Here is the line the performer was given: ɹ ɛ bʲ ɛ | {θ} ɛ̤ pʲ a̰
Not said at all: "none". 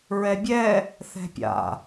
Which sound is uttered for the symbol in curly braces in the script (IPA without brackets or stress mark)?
θ